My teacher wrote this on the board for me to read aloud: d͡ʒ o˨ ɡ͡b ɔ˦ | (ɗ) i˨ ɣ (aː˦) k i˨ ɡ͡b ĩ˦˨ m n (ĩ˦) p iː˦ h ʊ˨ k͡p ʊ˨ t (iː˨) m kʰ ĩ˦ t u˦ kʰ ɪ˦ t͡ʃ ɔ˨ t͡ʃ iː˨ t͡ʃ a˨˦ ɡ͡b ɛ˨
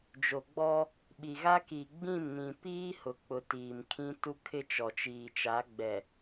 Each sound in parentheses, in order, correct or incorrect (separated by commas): incorrect, incorrect, incorrect, correct